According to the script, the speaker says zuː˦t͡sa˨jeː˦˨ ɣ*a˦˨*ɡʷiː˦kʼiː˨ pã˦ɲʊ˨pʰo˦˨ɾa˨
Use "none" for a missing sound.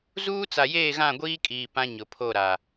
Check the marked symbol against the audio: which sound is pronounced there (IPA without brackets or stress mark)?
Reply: ã˦˨